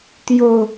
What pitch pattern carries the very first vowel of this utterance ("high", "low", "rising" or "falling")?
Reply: low